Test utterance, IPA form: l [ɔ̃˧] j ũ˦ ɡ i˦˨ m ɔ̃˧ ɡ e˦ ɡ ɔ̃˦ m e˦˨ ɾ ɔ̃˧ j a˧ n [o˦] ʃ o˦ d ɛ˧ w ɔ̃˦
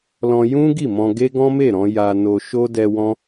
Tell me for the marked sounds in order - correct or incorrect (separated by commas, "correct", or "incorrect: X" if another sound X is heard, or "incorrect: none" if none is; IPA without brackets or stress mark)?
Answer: correct, incorrect: o˧